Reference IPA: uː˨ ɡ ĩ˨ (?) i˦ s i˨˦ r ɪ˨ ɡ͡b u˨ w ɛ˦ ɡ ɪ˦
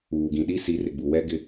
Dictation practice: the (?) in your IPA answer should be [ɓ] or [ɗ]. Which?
ɗ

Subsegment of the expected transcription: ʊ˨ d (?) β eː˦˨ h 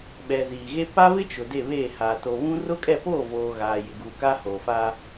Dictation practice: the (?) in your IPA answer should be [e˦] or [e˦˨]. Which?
e˦˨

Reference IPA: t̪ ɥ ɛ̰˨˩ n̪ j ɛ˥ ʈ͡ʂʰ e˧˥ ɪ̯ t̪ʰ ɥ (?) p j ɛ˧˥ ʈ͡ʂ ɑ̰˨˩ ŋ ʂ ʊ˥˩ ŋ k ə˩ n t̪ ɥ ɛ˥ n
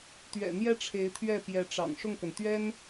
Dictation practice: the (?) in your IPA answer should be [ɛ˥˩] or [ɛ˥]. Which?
ɛ˥˩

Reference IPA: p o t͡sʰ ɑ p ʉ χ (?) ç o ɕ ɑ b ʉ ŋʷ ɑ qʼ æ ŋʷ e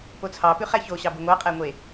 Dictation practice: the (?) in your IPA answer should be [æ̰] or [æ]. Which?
æ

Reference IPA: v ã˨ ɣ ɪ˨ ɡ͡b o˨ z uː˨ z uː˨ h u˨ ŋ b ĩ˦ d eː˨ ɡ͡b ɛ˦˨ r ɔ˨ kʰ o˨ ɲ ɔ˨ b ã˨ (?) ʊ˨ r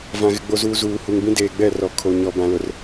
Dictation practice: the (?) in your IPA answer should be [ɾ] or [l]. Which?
l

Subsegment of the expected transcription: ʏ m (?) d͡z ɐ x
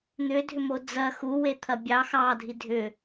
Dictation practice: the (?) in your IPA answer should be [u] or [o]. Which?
o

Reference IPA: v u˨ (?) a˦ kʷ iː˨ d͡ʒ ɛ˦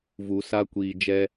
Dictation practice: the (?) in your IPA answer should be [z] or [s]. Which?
s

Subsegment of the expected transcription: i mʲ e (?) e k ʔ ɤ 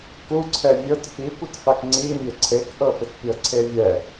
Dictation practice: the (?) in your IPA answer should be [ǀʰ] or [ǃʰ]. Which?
ǀʰ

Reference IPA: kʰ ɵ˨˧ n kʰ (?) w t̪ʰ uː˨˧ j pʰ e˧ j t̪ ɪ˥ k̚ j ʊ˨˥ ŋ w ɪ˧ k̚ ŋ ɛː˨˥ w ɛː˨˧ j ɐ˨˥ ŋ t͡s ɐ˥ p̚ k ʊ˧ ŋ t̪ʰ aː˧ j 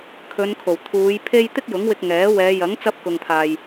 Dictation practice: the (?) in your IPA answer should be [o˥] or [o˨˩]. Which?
o˨˩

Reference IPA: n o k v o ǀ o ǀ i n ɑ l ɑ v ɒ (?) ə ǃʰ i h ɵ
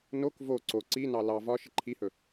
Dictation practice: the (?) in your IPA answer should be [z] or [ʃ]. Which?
ʃ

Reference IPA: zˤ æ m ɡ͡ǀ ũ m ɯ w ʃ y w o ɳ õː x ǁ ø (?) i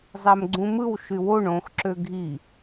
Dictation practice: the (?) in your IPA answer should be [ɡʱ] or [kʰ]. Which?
ɡʱ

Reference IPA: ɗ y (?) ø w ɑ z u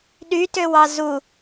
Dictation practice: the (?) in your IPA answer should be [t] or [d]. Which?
t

